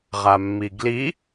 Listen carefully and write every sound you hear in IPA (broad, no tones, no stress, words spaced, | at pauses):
ʁamːiɡli